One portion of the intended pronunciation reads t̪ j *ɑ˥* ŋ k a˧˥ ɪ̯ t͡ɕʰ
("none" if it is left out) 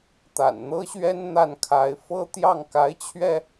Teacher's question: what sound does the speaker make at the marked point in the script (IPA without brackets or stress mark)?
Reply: ɑ˥˩